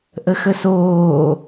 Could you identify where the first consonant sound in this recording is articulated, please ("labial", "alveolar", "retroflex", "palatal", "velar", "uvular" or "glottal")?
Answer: glottal